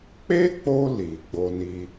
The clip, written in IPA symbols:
k͡p e˦ k͡p o˧ l i˨ ɡ͡b o˧ n i˦

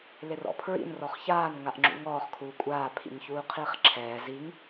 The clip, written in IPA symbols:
l ɪ r ɔ̰ pʰ ɹ ḭ n r ɔ χ ç aː n ŋ a ʔ ŋ͡ǁ ṵ ŋ ɔː χ kʰ uː kʷʼ aː pʰ ḭ ɲ ç uː qʰ iː χ ǁʰ ɛː z i ŋ

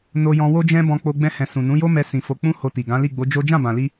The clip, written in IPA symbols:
n o˧ j ɔ̃˧ w o˦ d͡ʒ ɛ̃˦ b ɔ̃˧ k͡p o˧ ɡ͡b ɛ̃˧ h ɛ̃˨ s ũ˨ n ũ˨˦ j o˦ m ɛ˧ s ĩ˧ f o˧ k͡p ũ˦ h o˧ t i˨ ɡ ã˨˦ l i˦˨ ɡ͡b o˨˦ d͡ʒ o˦ d͡ʒ ã˦˨ b ã˨ l i˧

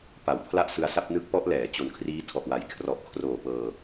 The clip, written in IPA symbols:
p a˩˦ w pʰ l a˥˩ ʔ s ɯ˧ a̯ s a˥˩ p̚ n ɯ˦˥ k̚ p ɔ˦˥ ʔ l ɛː˩˦ t͡ɕ o˨˩ n kʰ r iː˦˥ tʰ ɔ˨˩ ʔ w a˩˦ j kʰ r ɔ˨˩ ʔ kʰ r oː˨˩ p ɤː˧

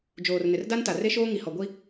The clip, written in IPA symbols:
d͡ʒ oː˨ r n ɪ˨ r d a˦ n t a˨ r e˦ ʃ oː˦ ŋ i˨ h ɔ˨ ɡʷ i˦

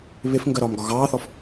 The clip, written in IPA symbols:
β ɪ f ŋ ɡ ɜ ɾ ɒː m ɡ ɒ ɣ ɑː θ ɔ f

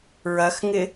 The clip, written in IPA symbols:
ɹ ɐ x ŋ ɪ

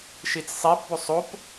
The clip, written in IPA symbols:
ʃ i t͡s sˤ i p b o sˤ o p

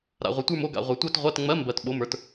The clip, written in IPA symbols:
ɾ a̰˨ ʁʷ ɘ˨ tʷ ə˞˥˧ m o˥˧ ɡ a̰˨ ʁʷ ə˞˨ tʷ ɜ˥˧ t ʁʷ ɜ˧˥˧ t ŋ͡m ɜ˧˥˧ m b ɜ˨ t ɓ o˧˥˧ m ə˞˥˧ t

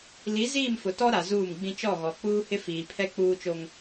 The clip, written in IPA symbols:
l i˨˦ z iː˦˨ m f ʊ˨ t ɔ˦ ɾ a˨ z uː˦˨ m ɡ͡b ĩ˦ t͡ʃ ɔ˦˨ ɣ ɔ˨ k͡p uː˦ h ɪ˦ f iː˨ pʰ ɛ˦ k͡p uː˦ t͡ʃ o˦ ŋ

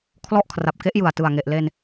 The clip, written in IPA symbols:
kʰ l ɔ˦˥ ʔ kʰ r a˨˩ p̚ k e˦˥ ʔ j ɯ˨˩ a̯ t ɯ˨˩ a̯ ŋ e˨˩ ʔ l e˧ n

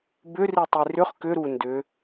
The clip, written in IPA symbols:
b ʏ r i tˤ i r ʏ χ k ʏ ɾ u n d ʏ

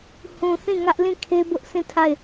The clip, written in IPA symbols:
h ũ˨ θ ĩ˦˨ ŋ ä˦ ʔ l ĩ˦˨ kʰ e˦ b ʊ˦ ʔ s ĩ˦˨ tʰ a˦˨ ɪ̯

